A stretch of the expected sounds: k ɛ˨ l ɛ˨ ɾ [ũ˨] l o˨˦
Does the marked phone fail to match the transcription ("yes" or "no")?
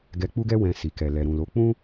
no